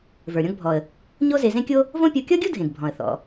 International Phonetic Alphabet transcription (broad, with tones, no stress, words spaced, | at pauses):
və˞˩ɾʲɔ̃˧ɡbʱɔ˩ə̯ | ɲo˥ze˧zẽ˥kʲo˥ | võ˥pʲɔ˧ kʲɔ˥ɡʲo˥dʱẽ˩ɡ bʱɔ̃˩ə̯ θɔ̰˩